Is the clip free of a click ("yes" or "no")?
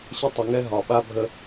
yes